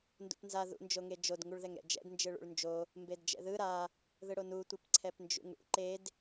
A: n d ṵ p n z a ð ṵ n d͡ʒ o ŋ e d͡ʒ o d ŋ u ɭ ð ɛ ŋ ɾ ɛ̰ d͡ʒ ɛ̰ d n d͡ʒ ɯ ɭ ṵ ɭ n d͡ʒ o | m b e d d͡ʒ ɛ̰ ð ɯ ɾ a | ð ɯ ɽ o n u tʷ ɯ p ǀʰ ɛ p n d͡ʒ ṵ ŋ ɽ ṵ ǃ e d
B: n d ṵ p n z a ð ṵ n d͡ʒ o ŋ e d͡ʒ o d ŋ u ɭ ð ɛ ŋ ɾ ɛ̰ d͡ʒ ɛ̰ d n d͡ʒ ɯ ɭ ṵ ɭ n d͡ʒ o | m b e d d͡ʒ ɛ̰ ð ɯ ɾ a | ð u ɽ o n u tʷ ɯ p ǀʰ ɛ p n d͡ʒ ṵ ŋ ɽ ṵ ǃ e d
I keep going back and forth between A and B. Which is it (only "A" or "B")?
A